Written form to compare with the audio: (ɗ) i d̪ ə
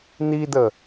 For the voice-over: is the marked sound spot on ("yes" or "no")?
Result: no